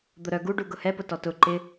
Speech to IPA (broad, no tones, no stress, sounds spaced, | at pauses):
d̪ ʊ ɾ œ ɡ u ɖ u ɡ ʊ h ɛ p ʊ t ɔ t ʊ ǃ ɪ